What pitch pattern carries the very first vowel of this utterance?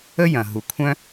high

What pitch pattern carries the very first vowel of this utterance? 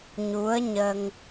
rising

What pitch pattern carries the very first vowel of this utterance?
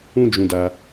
high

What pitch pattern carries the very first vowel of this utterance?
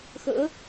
rising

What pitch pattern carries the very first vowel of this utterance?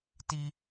high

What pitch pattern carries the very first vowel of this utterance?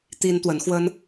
high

